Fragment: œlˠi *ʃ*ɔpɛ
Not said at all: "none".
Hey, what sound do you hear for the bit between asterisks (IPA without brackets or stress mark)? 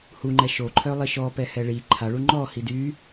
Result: ʃ